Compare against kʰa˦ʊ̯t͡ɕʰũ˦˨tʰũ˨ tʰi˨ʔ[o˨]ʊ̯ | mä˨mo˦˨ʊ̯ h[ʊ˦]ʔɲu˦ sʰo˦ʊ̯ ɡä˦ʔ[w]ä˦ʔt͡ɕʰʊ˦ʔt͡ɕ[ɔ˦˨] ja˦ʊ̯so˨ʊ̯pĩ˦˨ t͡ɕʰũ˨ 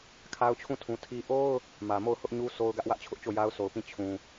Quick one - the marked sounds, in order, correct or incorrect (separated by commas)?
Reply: incorrect, correct, correct, incorrect